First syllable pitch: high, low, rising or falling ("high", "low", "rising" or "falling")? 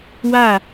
falling